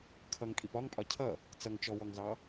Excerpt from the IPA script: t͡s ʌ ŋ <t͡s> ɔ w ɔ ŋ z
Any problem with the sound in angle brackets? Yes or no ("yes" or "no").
yes